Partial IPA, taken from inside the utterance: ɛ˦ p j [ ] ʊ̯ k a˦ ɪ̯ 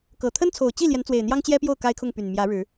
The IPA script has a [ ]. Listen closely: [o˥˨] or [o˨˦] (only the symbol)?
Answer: o˥˨